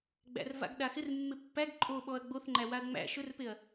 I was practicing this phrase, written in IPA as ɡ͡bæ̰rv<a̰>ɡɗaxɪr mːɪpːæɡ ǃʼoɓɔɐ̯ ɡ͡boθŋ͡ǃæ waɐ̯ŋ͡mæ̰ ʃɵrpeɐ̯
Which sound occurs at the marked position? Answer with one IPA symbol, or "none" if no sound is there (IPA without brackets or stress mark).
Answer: a̰